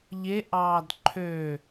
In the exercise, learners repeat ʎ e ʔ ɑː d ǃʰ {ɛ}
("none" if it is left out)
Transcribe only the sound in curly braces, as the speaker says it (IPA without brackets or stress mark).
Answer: ø